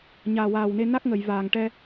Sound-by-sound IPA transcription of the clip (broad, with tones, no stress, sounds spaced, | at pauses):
ɲ aː˨˩ w aː˨˩ w n e˧ n a˦˥ k̚ ŋ ə˨˩˨ j v aː˨˩ ŋ ʈ ɛ˧